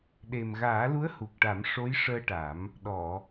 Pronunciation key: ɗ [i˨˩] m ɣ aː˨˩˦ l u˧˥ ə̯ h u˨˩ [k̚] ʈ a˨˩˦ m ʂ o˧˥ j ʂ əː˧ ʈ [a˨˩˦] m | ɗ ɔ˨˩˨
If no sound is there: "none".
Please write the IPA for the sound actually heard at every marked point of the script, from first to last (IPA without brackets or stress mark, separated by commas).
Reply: e˨˩, k̚, a˨˩˦